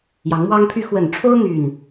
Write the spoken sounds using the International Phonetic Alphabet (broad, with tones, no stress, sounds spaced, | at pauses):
j ɑ˨˦ ŋ m w ɑ˦ ŋ pʰ y˦ x w ə˨˩ n ʈ͡ʂʰ o˦ ʊ̯ n̪ y˥˨ n